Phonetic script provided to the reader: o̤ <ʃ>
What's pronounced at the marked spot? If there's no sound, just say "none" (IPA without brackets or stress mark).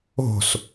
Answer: s